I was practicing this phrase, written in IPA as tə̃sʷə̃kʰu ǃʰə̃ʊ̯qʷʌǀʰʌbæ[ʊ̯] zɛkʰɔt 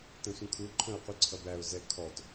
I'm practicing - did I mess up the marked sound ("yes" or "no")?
no